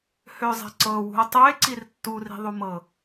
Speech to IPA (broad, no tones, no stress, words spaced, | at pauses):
høzˤɛ̤ ǀɤwṳo̯ tˤøe̯ǀir tːuri̤ðˤumɤ